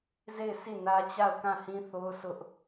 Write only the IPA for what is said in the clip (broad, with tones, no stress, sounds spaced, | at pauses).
z e˦˨ ɪ̯ sʰ i˦˨ n ä˦ t͡ɕ a˦˨ ʊ̯ k ã˦˨ h ĩ˦ θ o˦ ʊ̯ sʰ ʊ˦ ʔ